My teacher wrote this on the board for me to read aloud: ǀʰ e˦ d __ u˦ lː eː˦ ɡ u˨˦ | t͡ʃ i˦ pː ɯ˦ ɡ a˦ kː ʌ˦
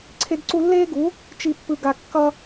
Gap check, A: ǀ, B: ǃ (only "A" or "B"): A